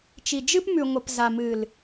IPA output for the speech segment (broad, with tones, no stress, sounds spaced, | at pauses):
t͡ʃ i˨ d͡ʒ ɨ˦ p m ʉ˨ ŋʷ ə˨ p z a˨ m ɨ˨ l